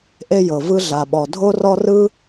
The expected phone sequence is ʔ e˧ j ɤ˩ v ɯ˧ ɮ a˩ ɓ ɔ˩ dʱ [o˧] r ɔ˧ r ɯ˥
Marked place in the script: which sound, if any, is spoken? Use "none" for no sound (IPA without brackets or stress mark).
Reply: o˧